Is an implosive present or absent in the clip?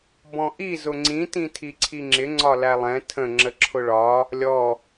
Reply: absent